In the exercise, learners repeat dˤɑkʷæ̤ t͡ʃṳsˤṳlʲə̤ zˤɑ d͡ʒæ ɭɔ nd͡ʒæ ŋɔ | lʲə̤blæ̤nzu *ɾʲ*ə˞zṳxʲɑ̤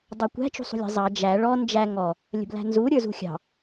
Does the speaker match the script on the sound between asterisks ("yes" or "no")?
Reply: yes